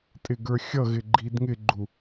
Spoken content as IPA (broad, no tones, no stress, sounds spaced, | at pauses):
tʼ ɪ ɡ ə˞ xʲ ʌ ɣ ɪ ɡ͡ǃ i d ŋ ɪ ɡ͡ǃ u